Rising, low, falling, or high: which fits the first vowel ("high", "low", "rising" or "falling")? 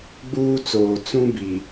high